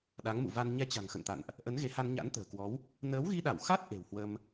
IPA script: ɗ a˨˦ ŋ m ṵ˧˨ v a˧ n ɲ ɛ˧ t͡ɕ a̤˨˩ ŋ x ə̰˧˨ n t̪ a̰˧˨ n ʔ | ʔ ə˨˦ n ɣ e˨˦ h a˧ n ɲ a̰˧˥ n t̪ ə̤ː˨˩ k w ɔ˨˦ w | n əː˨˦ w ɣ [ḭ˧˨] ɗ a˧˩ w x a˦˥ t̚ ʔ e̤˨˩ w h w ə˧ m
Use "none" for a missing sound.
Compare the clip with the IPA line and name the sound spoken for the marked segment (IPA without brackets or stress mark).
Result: i˧